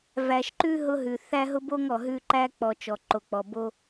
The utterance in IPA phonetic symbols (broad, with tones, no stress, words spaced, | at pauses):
væ˨ʃǃʉ˦ ɦʊ˦ɦʉ˨ θæ˦ɦʊ˦bo˦ŋ ɔ˨ɦʉ˦ ǃæ˦k͡pɔ˨ t͡ʃɔ˨ǃo˨k͡pɔ˨bo˦